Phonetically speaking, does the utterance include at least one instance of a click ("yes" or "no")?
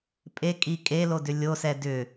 no